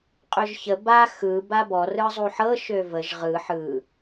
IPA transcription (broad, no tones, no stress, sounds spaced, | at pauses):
qʼ ø ʒ ç ə b a x ɯ b a b ɔ r ɯ zˤ u ħ ɤ ʃ ø v ə ʒ ʁ ɯ ħ ɯ